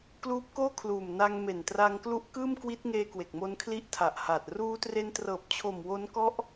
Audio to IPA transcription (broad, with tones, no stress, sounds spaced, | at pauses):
k l uː˦˥ p̚ k oː˥˩ kʰ l uː˨˩ m n a˧ ŋ m e˨˩ n t r a˧ ŋ k l u˦˥ ʔ k ɯː˥˩ m k w i˦˥ t̚ ŋ eː˧ k w e˨˩ k̚ m o˦˥ n kʰ l i˥˩ ʔ tʰ a˨˩ ʔ h a˨˩ t̚ r uː˧ t r e˧ n t r ɤː˨˩ p̚ t͡ɕʰ o˨˩ m w o˦˥ n k ɔ˦˥ ʔ